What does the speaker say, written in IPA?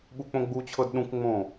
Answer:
ɓ u k͡p õ ɡ͡b u t͡ɕʰ ɤ d ɗ ũ k ŋ͡m õ

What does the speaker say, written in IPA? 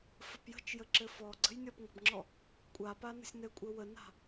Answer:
f ə p j ə̤ t͡ʃ j ə ǁ ɘ f ɔ ɡ͡ǀ ə̤ j nʲ ɔ p ŋ ə̤ b ŋ͡ǁ ɔ | kʷʼ a p a n ə̤ sʲ n ɘ kʷʼ ɘ w ə n a̤

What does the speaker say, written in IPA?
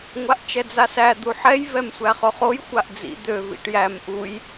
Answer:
ŋʷ a ʔ t͡ʃ ɛ d͡z a s æ d̪ u ħ ɛ j v ɛ m sʷ æ χ ɵ χ o j xʷ a ʔ d͡z ḭ d̪ ø v ḭ ʈ j æ m ʔ u j

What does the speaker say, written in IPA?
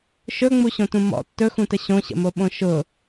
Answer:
ʃ ɵ ŋ͡m u ɕ õ t ũ m ɔ̰ tː ɵ x ũ t ə ɕ õ ɕ ə̰ m o ɓ õ ʃ ʊ

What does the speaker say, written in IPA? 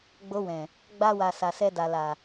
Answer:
ɡ͡b o˧ w ɛ̃˨ | ɡ͡b a˦ w a˧ s a˧ s ɛ˦ d a˧ l a˨

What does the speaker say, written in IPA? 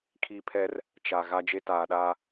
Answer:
kʰ i˦ pʰ ɛ˦ r | t͡ʃ a˨ ɣ a˦ d͡ʒ e˦ t aː˨ ɗ aː˦

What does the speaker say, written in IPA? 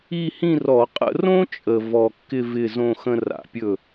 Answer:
i˥˧ h ĩ˥˧ r ɔ˧˩˧ qʼ ə̰˧ r õ˥ t͡ʃʼ ə˨˩ v ɔ˨˩ kː ɪ˥˧ v ɪ˥˧ z õ˥˧ x ə̃˥ r a̰˧˩˧ pʲ ɵ˥˩

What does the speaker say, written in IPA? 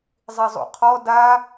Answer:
zˤ i zˤ ṵ qʰ ɔ d a

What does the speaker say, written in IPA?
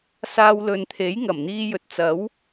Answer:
s aː˧ w l ɵ˨ n t̪ʰ e˨˥ j ŋ ɐ˨˩ m n̪ iː˧ j ɵ˨ t̚ t͡s ɐ˨˥ w

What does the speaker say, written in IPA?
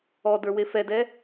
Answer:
ɔ d ə˞ w e f ɛ d ɛ

